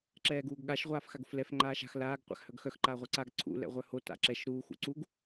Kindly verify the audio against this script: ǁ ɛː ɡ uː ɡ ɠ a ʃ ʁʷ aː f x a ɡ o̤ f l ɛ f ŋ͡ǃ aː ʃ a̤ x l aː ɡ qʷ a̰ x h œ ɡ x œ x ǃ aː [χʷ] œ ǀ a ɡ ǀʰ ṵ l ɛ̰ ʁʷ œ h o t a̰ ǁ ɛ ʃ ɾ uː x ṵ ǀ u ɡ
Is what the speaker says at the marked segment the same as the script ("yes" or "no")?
no